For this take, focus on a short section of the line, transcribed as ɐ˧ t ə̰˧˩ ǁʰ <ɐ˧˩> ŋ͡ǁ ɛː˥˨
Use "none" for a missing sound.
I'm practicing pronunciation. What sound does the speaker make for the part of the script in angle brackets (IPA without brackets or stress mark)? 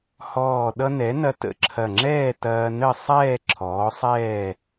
ɐ˧˩